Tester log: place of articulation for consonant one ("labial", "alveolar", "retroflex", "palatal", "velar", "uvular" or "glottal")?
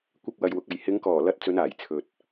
velar